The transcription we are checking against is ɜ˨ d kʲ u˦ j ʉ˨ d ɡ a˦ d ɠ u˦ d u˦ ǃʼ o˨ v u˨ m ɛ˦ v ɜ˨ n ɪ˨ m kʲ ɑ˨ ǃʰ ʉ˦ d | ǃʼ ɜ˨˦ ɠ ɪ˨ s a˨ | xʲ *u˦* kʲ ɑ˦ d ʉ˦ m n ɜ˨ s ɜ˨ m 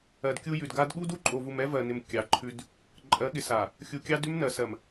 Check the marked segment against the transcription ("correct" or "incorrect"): incorrect